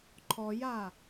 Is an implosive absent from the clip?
yes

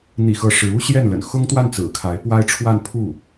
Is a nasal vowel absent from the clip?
yes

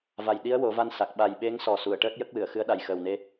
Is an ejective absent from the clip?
yes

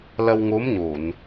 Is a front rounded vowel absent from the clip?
yes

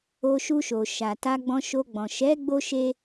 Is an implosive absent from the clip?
yes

